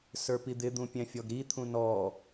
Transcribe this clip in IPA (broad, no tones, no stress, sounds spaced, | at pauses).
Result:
s ə˞ p i d̪ ɪ d̪ ũ pʲ ɛ̃ fʲ ɔ ɡ ɾ i t̪ʰ ũ n ɔ